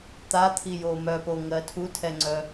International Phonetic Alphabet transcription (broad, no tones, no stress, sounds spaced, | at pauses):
t̪ a t̪ʰ i j o m œ p o ŋ ɜ tʰ u tʰ ɛ ŋ͡ǀ œ